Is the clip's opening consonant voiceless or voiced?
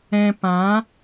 voiceless